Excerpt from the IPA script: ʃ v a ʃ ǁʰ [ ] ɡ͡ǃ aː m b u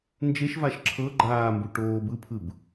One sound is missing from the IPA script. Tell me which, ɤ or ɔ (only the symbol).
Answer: ɤ